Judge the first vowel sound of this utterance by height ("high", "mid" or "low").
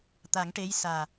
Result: low